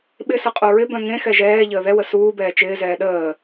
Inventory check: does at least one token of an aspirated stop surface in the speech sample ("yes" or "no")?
no